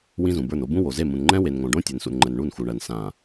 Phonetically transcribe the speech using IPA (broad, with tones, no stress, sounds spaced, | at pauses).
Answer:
w ĩ˦ z ũ˨ b ə˞˦˨ n o˦ b ũ˦ w o˨ z e˦˨ m ũ˨ n ŋ͡ǃ ɛ̃˦ w e˨ n ŋ õ˨ ɖ õ˦ tʲ e˨ n s ṵ˨ n ŋ͡ǃ ɛ˨ n ɳ u˦˨ n x u˨ ɳ ɜ˨ n s ã˨